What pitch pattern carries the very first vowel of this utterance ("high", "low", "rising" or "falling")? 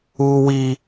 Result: low